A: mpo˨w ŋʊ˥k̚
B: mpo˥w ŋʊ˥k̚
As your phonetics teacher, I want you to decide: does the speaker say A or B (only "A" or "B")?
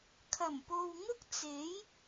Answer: A